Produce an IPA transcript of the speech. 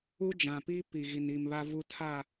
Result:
u˦ d͡ʒ ã˨ p i˦ p i˨ ɣ i˨ n i˨ m β a˦ v u˦ tʰ a˦˨

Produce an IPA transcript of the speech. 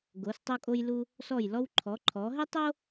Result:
ɡ o˩˧ s tˤ o˧ kʼ o˧ j l u˧ | s ɔ˧˩ j l ɔ˧ w ǃʰ ɔ˩˧ ǃʰ ɔ˩˧ ɦ ɘ˥ tˤ o˥

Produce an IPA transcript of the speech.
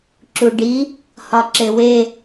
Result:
ǁ u ɖ i | h ɒ ǁ e w e

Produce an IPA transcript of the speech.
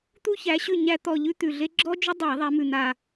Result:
t̪ u˥ ç æ˨˦ ɕ ʉ˦˨ ɲ æ˥ t̪ ɔ˦˨ ʎ ʉ˥ t̪ ʉ˨˩ ɮ e˥ ɡ͡ǁ ɔ˥ d͡ʒ ʏ˥ dˤ æ˧˩˧ ðˤ æ˨˦ m ʉ˨˩ n̪ a˦˨

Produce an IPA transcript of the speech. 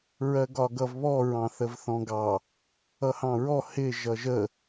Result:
ɹ ɜ ɡ ɒ ɡ ʌ v β ɔ ɹ ɑ̃ θ ə v θ ɔ̃ ɡ ɑ | ʌ h ɑ̃ ɹ ɔ h ɪ ʒ ʌ ʒ ə

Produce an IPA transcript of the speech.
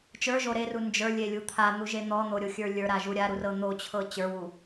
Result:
t͡ʃ ə˞ ʒ o ɾ e r u n d͡ʒ ə˞ lʲ e lʲ u t̪ʰ a n̪ u ʒ e n̪ ɔ n̪ o ɾʲ o xʲ ə˞ lʲ ə˞ ɾ a ʒ u ɾʲ a ɾ u r ɤ n̪ o t͡ɕʰ ɤ t͡ɕ ə˞ w u

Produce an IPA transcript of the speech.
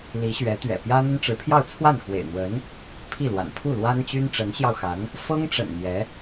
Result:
l i˧˥ ɕ ɥ ɛ˧˥ t̪ ɥ ɛ̰˨˩ p j ä˥ n̪ ə˥ n ʈ͡ʂ ɻ̩˧˥ pʰ j ɑ˥˧ ʊ̯ t͡sʰ w a˥˩ n x w ḛ˨˩ ɪ̯ n̪ w ə˧˥ n | pʰ i˥˩ l w a̰˨˩ n pʰ u˥˩ l w a˥ n t͡ɕ y˥ n ʈ͡ʂ ə˧˥ n ɕ j ɑ˧ ʊ̯ x a˧˥ n | f ɤ˥ ŋ ʈ͡ʂ ə̰˨˩ n n̪ j ɛ˧˥

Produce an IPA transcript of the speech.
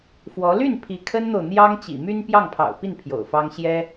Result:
f w ɔ˧˥ l y˥˩ n pʰ i˧˥ kʰ ə˥ n n̪ o˨ ʊ̯ n̪ j ɑ˥ ŋ t͡ɕ ḭ˨˩ m y˥ n p j ɑ˥˩ ŋ pʰ ɑ̰˨˩ ʊ̯ p i˥˩ n pʰ j o̰˨˩ ʊ̯ f ɑ˥ ŋ ɕ j ɛ˥

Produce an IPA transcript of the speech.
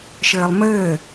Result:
ʃ ɘː lˠ m ɘː

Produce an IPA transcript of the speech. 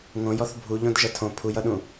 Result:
ŋ õ j ɔ θ bʱ u ʎ õ d ʒ ʌ tʰ õ pʰ u j ʌ ɗ ũ

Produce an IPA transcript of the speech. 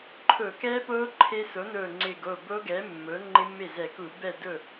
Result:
ǃʰ ʊː˧˩˧ k ɛː˦˥ p oː˦˥ ǃʰ e˦˥ s o˩˥ n ʊː˧˩ ŋ͡ǀ ɪː˧˩ ɡ o˥˩ b oː˦˥ ɡ ɛː˩˥ mː ʊː˩˥ ŋ͡ǃ ɪ˦˥ mː e˥˩ z ɛ˧˩˧ k u˧˩˧ b ɛ˥˩ d ʊ˥˩

